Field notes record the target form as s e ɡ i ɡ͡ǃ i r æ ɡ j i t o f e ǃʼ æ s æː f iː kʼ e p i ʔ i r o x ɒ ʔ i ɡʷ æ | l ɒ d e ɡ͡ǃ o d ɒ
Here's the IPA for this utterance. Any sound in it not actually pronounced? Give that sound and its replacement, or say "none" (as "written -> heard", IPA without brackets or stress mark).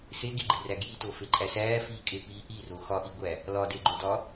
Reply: none